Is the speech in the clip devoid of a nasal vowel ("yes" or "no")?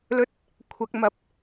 yes